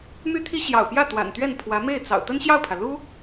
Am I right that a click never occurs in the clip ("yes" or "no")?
yes